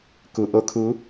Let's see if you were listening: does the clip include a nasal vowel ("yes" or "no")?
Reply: no